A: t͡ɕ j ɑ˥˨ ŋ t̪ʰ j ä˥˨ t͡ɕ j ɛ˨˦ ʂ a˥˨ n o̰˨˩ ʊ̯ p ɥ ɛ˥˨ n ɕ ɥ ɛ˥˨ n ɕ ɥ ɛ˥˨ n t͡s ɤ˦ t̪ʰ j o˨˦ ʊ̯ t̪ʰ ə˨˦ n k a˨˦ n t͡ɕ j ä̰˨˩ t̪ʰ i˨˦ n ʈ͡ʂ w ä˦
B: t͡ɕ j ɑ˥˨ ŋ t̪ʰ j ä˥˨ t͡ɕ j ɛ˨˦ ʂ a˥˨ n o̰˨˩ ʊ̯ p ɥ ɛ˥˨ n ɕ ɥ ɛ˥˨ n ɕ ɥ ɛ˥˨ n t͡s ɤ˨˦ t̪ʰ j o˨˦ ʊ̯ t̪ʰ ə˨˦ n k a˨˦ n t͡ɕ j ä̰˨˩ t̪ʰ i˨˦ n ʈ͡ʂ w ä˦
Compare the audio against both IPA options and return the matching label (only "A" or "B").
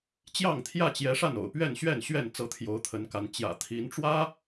B